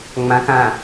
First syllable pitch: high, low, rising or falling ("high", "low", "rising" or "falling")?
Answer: low